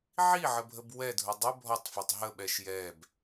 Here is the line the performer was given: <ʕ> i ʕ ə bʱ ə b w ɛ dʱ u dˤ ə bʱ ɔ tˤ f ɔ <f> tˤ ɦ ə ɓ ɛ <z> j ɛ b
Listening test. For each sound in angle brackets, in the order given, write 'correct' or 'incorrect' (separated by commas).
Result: correct, incorrect, incorrect